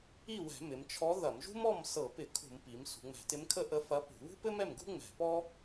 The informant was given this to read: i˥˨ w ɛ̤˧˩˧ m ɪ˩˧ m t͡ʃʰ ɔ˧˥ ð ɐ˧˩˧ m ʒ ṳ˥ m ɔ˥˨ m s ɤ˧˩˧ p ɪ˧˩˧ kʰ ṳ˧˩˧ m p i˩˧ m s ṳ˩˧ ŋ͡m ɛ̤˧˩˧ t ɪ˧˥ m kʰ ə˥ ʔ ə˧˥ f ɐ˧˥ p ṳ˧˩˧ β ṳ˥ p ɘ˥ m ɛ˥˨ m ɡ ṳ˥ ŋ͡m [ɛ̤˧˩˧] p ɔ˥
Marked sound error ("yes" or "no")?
no